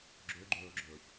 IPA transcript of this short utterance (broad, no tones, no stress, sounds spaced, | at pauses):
ɡ͡ǁ ø ɡ͡ǃ ɵː ɡ͡ǁ ɵː ç